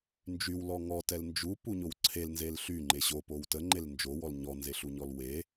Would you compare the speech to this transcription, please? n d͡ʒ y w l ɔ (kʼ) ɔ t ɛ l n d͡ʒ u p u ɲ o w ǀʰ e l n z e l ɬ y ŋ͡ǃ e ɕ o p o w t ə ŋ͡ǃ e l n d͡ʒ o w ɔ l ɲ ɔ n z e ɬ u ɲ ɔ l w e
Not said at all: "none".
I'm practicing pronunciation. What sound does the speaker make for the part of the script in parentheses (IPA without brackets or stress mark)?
ŋ